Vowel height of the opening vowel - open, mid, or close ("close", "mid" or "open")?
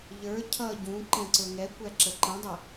mid